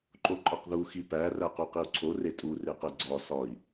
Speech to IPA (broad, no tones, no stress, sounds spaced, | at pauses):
ǃ o ǃʼ ɒ q ð u x i p æ r æ q u q i u̯ ǀʰ o r e tʼ u r e q e ɡ͡ǀ ɒ s ɒ i̯